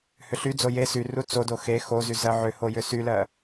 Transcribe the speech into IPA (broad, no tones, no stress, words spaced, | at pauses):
hʏɬyd͡zo je syru t͡sodo xe xozy zɜʕʏho jʏsylɜ